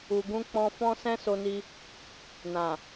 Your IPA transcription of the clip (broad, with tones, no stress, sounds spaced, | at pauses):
u˨ ɡ ũ˧ k͡p ɔ̃˧ f ɔ̃˦ s ɛ̃˦ s o˧ n i˧ | n ã˨